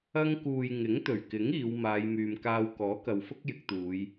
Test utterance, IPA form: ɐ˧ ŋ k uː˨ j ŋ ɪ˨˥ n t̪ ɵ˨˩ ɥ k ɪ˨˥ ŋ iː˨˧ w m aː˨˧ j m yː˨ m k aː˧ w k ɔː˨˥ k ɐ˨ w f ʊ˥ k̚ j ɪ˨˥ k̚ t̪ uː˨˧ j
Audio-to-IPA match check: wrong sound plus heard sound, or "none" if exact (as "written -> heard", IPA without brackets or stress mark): n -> ŋ